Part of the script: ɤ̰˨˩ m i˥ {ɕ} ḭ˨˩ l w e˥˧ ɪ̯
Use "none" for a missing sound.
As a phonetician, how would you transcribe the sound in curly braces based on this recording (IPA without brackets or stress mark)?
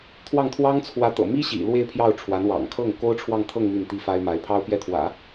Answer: ɕ